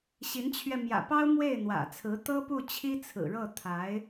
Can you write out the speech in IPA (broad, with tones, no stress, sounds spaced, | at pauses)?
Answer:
ɕ i˧˥ n t͡ɕʰ ɥ ɛ˧ m j ä̰˨˩ p ɑ˥ ʊ̯ m w e˥˩ ɪ̯ n̪ w ä̰˨˩ t͡sʰ ɹ̩˧˥ t̪ ɤ˥ p u˥˩ t͡ɕʰ i˥ t͡sʰ ɹ̩˨˩ ɻ ɤ˥˩ t̪ʰ a˧˥ ɪ̯